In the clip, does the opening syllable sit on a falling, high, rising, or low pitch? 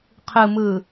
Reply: low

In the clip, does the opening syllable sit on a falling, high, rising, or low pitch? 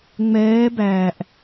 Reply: rising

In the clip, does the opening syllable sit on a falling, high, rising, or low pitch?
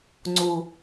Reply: low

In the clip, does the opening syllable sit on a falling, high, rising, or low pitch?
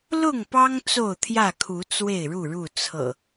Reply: falling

